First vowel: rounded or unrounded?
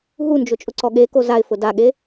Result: rounded